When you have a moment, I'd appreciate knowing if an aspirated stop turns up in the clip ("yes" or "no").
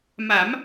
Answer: no